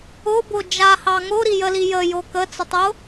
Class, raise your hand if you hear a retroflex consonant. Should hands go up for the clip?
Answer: no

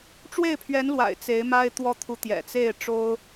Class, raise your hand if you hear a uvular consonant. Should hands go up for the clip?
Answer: no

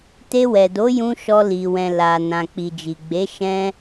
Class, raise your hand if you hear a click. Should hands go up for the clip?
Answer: no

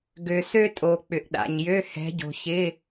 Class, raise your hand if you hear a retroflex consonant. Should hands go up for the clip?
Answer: no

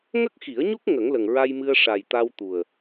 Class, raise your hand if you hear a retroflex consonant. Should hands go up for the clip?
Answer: yes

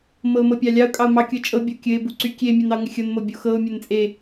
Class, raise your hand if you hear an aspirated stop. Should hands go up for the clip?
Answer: no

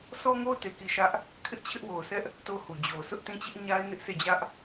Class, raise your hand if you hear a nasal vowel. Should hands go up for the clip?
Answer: yes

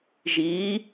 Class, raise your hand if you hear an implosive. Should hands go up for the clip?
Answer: no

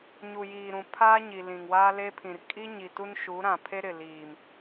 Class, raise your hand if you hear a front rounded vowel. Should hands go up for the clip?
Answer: no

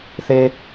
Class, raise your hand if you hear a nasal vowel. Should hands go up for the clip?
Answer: no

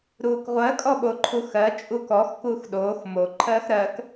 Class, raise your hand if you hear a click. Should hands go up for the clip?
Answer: yes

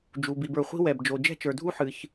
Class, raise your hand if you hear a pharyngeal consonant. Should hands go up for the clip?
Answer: yes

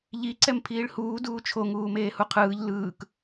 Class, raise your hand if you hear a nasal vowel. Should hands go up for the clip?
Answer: no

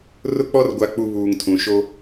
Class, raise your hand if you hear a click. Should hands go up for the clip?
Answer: no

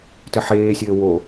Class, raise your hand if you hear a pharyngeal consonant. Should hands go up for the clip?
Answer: yes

